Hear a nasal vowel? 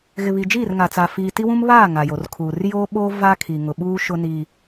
yes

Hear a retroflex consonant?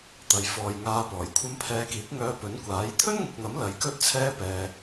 no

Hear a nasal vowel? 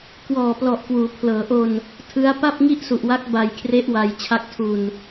no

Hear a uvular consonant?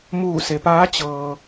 no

